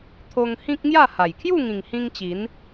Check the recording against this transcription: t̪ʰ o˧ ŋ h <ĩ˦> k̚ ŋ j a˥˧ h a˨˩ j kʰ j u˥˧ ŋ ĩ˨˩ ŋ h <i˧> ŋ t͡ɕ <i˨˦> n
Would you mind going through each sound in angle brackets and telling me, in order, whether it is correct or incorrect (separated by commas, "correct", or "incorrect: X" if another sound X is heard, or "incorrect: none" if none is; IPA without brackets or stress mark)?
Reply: correct, incorrect: ĩ˧, correct